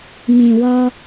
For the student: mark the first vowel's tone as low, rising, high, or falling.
low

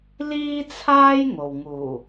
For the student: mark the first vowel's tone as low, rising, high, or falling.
high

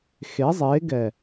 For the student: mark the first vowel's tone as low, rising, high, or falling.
rising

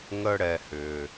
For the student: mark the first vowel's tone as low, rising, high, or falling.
low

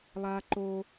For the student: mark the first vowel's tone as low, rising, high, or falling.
high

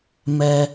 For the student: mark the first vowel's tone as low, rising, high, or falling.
low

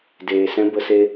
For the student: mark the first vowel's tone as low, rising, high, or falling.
low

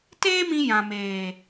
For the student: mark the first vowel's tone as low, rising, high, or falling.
high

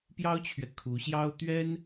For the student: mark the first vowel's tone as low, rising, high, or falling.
high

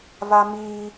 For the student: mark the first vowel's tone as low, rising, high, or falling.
high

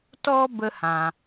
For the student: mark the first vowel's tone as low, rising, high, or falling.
high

